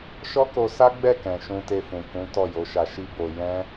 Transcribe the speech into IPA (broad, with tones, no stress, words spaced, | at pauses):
ʃɔ˦ko˧sa˦ ɡ͡bɛ˦˨kɛ̃˨ ʃũ˧te˧fũ˨kũ˨˦ tɔ˦˨jo˨˦ʃa˧ʃi˦ bo˧ jɛ̃˦